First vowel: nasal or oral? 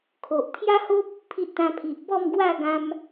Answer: oral